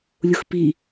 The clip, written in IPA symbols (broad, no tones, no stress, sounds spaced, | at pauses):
lʲ ʊ x p i